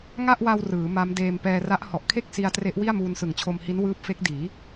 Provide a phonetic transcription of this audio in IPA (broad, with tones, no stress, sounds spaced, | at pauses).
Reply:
ŋ a˥˩ ʔ w a˧ w r ɯː˩˦ m a˦˥ m d eː˧ m p ɛː˧ r a˦˥ ʔ h ɔ˨˩ ʔ kʰ e˥˩ k̚ s i˧ a̯ t r e˦˥ ʔ w i˥˩ a̯ m uː˧ n s ɯ˨˩ ŋ t͡ɕʰ o˧ m h i˦˥ n w ɯː˦˥ p̚ f e˦˥ k̚ d iː˩˦